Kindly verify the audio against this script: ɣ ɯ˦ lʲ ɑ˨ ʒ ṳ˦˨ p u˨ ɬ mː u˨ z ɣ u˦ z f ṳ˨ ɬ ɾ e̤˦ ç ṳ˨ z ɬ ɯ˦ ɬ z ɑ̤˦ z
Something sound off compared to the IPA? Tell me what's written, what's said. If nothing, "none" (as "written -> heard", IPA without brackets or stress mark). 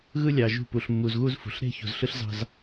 none